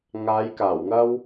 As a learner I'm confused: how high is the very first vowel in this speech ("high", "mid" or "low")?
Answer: low